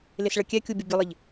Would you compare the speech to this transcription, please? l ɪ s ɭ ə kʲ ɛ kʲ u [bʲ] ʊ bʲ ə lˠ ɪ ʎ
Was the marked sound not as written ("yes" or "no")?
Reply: no